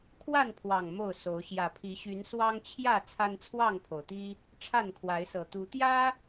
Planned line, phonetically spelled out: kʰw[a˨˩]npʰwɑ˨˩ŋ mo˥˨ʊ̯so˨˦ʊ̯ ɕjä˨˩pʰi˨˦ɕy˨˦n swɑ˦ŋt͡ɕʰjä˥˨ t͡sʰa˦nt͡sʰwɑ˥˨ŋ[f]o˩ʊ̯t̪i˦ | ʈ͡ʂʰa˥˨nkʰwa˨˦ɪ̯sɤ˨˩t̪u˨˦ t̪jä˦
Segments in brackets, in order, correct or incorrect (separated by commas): incorrect, incorrect